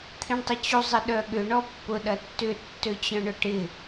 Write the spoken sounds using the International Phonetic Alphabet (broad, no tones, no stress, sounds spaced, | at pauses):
t̪ʰ ĩ ɳ tˤ ə t͡ɕ u zˤ ɪ ɗ œ ɠ ʏ ɳ ɔ pː ʊ ɗ ɐ tː ʏ tː ø t͡ɕ œ̃ ɳ ʊ ʈ ɪ